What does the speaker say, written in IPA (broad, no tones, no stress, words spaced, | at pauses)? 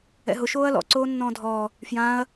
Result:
ɛ̰ɦʊ ʃoːɐ̯lɔ̰ ǀoːnːɔ̃ːdʱɔː | fjãːɐ̯